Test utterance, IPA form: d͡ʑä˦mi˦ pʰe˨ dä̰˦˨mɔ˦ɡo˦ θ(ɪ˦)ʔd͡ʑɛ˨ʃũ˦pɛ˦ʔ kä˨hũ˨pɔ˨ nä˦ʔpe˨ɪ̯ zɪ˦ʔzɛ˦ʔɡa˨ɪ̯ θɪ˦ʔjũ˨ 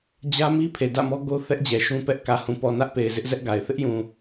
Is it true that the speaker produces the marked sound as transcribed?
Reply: no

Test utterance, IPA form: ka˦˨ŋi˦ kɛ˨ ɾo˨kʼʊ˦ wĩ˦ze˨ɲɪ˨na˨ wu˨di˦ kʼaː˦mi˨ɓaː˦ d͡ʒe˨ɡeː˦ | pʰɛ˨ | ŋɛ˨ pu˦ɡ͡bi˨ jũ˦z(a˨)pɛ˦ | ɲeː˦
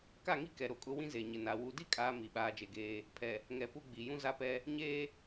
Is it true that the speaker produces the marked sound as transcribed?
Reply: no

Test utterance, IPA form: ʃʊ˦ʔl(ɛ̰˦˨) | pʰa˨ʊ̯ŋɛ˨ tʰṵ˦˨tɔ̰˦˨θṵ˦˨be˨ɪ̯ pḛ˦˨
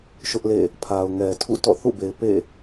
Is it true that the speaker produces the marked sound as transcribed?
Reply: no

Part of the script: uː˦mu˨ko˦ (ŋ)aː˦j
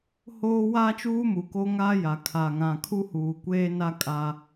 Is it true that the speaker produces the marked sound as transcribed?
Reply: yes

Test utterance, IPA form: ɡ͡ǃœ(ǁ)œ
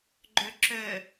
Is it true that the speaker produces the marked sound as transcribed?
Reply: yes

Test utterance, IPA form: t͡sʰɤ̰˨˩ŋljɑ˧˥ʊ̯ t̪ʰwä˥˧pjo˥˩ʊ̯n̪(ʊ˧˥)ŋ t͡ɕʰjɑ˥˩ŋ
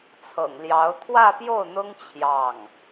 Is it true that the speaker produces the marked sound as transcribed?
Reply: no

